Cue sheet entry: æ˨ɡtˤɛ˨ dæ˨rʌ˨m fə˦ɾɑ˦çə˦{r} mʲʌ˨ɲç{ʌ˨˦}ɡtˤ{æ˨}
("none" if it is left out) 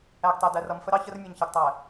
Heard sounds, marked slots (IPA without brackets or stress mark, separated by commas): r, ʌ˨, æ˨